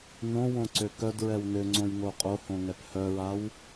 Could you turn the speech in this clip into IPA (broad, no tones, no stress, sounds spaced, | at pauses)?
n õ w õ ǀ ø k œ d ɹ ɛ w n ø ŋ͡ǀ õ j ŋ o qʼ o h õ ŋ ɛ p h œ ɹ a w